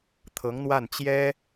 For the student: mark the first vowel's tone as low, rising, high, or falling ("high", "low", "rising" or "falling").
rising